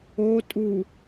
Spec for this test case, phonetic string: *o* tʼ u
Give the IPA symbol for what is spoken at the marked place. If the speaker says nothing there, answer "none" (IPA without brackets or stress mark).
o